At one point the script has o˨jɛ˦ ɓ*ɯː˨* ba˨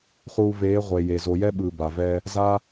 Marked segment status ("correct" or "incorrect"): correct